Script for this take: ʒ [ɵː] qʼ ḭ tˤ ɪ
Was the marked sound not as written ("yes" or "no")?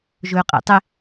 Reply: no